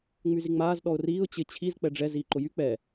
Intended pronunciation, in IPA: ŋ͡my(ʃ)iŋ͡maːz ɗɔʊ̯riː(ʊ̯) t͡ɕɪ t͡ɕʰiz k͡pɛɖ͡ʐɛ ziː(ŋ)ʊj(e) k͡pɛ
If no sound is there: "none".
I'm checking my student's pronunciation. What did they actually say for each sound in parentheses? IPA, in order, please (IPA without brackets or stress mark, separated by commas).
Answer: z, ʊ̯, ǃ, y